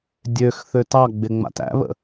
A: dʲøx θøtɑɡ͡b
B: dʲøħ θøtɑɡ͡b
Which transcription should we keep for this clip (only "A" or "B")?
A